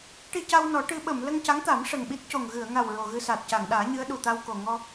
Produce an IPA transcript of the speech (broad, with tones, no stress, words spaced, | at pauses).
ʈi˧ ca˧wnɔ˨˩˦ ʈɨ˧˥ɓə˨˩˨m lə˧ŋca˧˥ŋt̪a˨˩˦m ʂə˨˩ŋɓi˦˥t̚co˨˩ŋ ɣɨ˨˩˨ə̯ŋa˨˩w ɹo˨˩ɣɨ˧sa˨˩t̚ ca˨˩˨ŋɗaː˨˩˦ ɲɨ˧˥ə̯ɗu˨˩t̪a˧w ko˨˩ ŋɔ˧